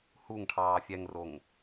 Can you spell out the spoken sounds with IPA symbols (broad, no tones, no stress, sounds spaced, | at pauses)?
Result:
h u ŋ ʈʰ ɑː fʲ ɛ ŋ r o ŋ